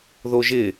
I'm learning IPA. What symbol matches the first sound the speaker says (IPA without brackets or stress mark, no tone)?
ð